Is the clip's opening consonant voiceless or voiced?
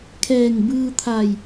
voiceless